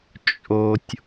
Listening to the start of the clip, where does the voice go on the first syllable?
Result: low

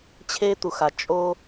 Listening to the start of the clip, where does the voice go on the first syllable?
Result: high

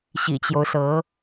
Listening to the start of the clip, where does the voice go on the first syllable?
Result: low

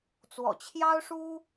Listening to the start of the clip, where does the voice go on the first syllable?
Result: low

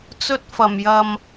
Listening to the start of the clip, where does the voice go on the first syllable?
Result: high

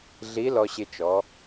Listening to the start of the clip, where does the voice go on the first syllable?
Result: rising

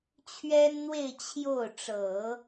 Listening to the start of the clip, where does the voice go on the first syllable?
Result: high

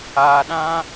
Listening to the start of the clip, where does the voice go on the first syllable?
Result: low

